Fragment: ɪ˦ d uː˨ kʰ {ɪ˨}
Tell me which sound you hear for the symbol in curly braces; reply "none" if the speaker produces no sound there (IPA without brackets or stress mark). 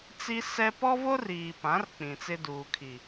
i˨